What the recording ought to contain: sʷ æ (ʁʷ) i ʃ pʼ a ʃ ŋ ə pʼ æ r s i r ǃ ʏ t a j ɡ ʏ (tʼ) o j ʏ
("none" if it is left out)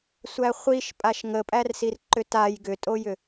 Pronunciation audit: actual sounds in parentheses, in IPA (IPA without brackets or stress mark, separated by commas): χʷ, tʼ